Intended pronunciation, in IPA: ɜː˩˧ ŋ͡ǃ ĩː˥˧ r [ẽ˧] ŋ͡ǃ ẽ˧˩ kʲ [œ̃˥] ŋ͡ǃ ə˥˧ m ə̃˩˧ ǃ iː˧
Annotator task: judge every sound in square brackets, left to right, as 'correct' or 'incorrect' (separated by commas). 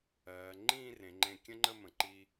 incorrect, incorrect